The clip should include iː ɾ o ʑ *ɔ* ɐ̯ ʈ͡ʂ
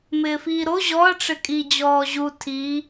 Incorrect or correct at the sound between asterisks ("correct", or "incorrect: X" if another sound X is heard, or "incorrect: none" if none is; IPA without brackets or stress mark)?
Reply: correct